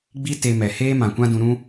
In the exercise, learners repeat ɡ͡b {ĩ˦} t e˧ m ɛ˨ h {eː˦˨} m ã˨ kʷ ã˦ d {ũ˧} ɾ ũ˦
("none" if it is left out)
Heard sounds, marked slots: i˦, eː˦, ũ˧

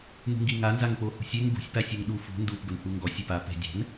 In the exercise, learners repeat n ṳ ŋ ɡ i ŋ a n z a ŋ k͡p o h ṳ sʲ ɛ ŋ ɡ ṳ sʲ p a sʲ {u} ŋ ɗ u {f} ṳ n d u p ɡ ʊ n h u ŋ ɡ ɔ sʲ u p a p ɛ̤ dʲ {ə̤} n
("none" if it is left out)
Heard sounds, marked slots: u, f, ɛ̤

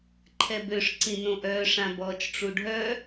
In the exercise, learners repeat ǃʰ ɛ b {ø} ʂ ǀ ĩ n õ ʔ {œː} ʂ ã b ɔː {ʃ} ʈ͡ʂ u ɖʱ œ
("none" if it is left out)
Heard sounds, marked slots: ø, œː, t͡ʃ

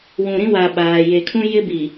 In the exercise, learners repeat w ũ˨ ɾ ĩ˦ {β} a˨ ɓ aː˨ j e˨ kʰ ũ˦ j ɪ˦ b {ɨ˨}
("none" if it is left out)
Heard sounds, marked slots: w, i˨

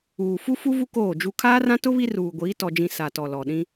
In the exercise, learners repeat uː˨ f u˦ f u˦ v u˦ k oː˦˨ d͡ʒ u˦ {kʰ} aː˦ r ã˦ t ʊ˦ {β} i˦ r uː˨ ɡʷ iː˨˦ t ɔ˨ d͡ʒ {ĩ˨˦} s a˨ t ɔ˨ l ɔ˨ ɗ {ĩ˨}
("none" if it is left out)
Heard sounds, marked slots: kʰ, β, ĩ˨, ĩ˦

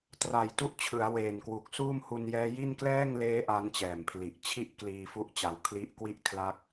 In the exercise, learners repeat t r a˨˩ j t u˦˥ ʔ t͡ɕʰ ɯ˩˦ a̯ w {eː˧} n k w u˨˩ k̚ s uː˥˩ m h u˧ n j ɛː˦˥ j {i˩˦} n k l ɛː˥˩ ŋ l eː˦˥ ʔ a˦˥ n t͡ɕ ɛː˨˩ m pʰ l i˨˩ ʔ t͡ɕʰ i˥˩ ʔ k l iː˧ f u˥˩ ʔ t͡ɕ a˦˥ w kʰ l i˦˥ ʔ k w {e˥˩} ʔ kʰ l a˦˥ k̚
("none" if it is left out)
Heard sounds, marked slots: eː˨˩, i˥˩, i˥˩

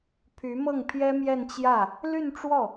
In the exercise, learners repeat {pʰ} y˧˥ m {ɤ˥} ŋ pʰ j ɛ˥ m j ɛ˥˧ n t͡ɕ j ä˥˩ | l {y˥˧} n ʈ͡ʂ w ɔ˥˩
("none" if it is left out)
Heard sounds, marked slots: pʰ, ɤ˥˩, y˥˧

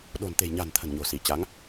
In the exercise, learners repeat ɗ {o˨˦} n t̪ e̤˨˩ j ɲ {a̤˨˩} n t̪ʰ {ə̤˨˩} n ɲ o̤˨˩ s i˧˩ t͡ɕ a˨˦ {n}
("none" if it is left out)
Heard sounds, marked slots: o̤˨˩, a̤˨˩, ə̤˨˩, ŋ

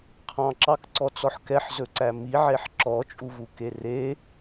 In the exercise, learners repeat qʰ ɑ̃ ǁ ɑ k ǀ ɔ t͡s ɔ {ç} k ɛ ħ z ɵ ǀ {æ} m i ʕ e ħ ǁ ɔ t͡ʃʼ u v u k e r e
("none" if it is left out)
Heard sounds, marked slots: ħ, æ

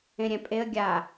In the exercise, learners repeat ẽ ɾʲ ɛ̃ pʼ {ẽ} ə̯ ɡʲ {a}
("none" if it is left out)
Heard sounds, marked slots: e, a

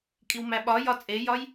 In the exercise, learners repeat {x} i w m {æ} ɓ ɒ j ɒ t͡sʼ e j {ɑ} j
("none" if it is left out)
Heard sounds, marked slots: kʼ, æ, ɒ

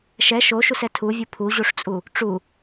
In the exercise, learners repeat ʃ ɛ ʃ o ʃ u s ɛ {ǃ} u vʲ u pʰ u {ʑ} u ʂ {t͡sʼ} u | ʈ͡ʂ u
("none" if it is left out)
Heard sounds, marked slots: tʰ, ʑ, t͡sʼ

